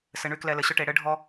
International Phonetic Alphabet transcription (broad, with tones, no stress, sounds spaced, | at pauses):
s ɘ˧ ɳ y˦ k l ɛ˧ l ɘ˨ ɕ ɵ˦ ʈ e˧ ɽ ɘ˦ ɖʱ ɔ˦